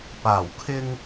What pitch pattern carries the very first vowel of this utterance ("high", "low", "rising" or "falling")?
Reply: low